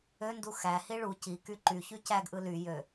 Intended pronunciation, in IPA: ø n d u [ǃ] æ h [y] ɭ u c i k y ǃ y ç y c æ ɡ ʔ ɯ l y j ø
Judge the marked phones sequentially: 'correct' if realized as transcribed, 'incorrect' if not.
incorrect: x, incorrect: i

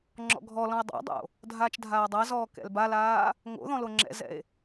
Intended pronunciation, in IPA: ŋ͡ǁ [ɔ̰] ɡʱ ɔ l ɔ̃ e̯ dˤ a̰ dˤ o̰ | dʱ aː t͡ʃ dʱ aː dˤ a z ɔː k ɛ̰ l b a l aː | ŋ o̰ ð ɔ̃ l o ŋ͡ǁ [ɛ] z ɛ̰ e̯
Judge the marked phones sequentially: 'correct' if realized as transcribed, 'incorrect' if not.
correct, incorrect: ɛ̰

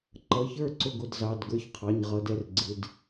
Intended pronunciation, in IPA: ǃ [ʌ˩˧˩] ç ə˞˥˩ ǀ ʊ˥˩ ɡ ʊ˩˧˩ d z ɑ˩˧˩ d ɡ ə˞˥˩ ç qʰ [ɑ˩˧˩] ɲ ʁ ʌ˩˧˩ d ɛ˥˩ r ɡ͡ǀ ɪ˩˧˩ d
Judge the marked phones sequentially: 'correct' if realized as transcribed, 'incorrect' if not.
correct, correct

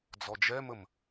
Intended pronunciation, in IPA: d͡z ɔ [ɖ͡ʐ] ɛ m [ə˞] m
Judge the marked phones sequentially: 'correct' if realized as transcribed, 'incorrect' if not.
incorrect: d͡ʒ, incorrect: ə

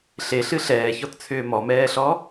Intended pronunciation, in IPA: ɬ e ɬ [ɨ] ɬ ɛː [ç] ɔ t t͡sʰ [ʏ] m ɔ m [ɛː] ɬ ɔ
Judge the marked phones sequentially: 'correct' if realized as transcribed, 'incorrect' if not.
correct, correct, incorrect: ʏː, correct

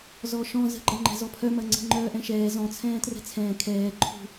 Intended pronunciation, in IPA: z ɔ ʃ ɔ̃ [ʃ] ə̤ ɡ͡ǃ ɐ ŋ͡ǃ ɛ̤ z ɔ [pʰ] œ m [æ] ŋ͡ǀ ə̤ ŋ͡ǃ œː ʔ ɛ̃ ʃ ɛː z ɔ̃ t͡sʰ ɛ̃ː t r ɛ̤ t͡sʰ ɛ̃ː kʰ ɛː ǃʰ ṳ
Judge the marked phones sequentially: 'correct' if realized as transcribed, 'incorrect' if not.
incorrect: z, correct, incorrect: ɐ

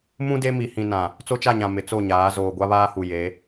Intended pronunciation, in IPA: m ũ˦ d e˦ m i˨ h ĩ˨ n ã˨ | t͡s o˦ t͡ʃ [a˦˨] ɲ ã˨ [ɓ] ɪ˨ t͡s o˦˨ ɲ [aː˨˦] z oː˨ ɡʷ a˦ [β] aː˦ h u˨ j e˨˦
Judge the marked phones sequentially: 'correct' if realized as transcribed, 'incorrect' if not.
correct, incorrect: m, correct, correct

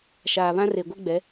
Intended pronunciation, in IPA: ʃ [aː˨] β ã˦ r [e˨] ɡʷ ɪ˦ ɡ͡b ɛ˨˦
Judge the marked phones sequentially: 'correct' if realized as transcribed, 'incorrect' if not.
correct, correct

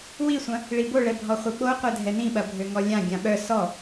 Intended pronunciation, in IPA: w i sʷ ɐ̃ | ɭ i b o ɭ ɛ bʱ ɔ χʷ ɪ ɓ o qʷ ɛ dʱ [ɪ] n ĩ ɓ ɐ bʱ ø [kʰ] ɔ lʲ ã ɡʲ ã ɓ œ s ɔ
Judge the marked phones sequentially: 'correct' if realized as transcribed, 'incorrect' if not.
incorrect: ɛ, incorrect: ŋ

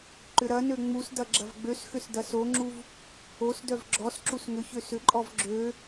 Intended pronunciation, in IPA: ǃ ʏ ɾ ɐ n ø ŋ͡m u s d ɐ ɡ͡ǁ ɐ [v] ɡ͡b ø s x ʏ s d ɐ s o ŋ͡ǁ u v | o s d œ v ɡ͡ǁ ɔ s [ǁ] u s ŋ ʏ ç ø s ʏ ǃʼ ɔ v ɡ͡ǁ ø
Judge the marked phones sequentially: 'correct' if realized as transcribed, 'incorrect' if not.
correct, correct

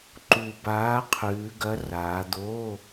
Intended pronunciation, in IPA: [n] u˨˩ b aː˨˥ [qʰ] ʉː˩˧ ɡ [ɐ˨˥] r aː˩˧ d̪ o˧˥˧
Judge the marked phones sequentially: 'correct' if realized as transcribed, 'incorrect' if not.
incorrect: ǃ, correct, correct

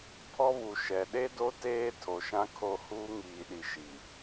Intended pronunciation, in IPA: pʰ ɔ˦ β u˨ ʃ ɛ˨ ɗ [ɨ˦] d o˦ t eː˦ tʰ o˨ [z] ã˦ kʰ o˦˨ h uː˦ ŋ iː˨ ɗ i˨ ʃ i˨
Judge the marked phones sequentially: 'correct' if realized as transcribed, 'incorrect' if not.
incorrect: e˦, incorrect: ʃ

